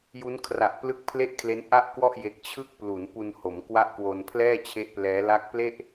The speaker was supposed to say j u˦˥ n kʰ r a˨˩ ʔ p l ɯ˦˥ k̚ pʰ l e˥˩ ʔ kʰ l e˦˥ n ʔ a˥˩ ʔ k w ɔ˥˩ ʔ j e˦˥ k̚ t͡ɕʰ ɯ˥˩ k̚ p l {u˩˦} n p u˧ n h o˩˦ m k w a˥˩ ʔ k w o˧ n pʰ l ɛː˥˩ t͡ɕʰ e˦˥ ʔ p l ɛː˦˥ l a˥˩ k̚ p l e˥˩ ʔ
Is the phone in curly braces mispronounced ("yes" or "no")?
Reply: no